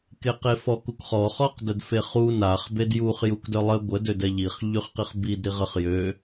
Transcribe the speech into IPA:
keqefɔk ukχɔ χɔqdədfeχu naχ bedjuχ jukdœlˠə ɡʷə dødɛʎiχ ʎyχqiχbid ɾiʁəχ jø

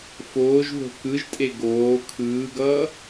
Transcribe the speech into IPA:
foːʒðo̤ kɯʒtʼe ɡoː kʰɯːɡʌː

